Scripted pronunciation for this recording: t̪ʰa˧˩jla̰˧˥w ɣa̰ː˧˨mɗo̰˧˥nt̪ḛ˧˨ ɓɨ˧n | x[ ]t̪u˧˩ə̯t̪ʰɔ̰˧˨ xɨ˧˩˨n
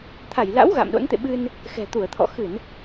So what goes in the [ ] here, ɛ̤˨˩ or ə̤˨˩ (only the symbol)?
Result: ɛ̤˨˩